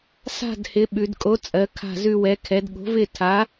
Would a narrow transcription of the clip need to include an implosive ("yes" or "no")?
yes